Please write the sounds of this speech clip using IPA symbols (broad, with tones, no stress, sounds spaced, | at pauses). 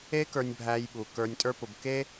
e˦ k ə˞˧ nʲ bʱ æ˧ j ɓ u˨ k ə˞˧ nʲ tʼ ə˞˦ p ʊ˧ b k e˦